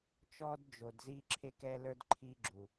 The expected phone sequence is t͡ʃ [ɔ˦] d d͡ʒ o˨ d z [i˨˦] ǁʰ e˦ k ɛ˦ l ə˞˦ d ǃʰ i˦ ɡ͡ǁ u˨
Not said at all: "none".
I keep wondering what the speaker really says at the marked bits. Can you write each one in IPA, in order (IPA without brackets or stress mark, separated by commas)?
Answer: ɔ˦, i˦